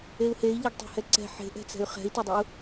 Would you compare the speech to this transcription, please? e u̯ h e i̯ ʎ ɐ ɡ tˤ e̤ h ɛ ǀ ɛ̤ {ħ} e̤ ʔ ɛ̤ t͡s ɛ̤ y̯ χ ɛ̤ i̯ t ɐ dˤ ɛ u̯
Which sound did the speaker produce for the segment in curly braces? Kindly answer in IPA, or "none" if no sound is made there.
ħ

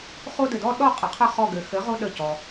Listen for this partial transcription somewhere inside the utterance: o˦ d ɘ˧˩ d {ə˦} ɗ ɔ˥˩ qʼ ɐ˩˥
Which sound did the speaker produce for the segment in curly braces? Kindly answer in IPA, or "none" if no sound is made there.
ɔ˦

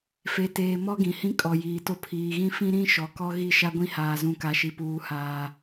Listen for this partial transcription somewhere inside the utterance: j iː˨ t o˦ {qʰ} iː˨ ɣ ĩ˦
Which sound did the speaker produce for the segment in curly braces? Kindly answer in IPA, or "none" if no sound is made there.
pʰ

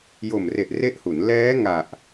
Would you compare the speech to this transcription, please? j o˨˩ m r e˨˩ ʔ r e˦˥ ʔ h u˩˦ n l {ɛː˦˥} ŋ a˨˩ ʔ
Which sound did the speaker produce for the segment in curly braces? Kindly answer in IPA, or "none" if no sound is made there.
ɛː˦˥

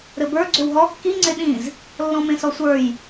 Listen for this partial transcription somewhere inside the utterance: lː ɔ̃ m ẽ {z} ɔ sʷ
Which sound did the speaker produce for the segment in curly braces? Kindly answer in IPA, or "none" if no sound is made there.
s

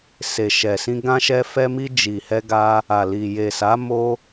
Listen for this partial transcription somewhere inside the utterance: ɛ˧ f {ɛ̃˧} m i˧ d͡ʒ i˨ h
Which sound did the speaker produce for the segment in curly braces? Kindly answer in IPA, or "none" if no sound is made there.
ɛ˧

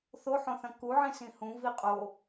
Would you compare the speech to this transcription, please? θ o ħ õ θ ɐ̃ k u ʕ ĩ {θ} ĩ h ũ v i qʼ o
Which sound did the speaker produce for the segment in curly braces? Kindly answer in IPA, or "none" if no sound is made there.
s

